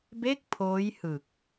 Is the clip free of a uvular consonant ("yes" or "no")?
yes